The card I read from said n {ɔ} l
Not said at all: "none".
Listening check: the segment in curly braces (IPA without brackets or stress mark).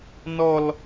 ɔ